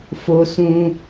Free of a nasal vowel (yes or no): no